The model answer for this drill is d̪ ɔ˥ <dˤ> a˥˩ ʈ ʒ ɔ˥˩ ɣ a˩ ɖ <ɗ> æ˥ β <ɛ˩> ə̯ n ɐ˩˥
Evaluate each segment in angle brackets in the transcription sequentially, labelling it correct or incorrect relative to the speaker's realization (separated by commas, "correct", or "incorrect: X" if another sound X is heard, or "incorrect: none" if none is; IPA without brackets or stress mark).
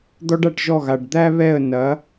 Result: incorrect: ɖ, incorrect: d̪, incorrect: ɛ˥˩